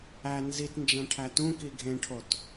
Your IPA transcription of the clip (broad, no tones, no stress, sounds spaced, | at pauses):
æ n z i t n d͡ʒ æ̃ ʈʰ æ t ũ k i ɡʱ ẽ ʈʰ o t